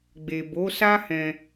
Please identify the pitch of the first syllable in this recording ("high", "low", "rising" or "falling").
low